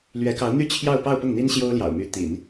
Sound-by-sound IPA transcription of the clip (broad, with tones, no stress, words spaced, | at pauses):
lɥɛ˧˥kɑ˧˥ʊ̯n̪y˥˧ t͡ɕʰjɑ˥˧ʊ̯pɑ˥˧ʊ̯ pʊ˥˩ŋn̪i˥nɕjo˥ʊ̯ljɑ̰˨˩ʊ̯ my˧˥ t̪ḭ˨˩˦n